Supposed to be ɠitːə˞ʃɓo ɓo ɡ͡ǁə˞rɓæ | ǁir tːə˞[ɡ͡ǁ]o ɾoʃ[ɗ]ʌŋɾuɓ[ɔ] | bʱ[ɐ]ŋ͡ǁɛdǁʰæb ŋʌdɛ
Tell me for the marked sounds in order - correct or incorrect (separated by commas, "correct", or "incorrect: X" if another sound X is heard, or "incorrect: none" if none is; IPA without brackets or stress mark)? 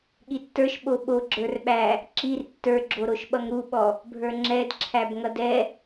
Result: correct, incorrect: ɓ, correct, incorrect: ə˞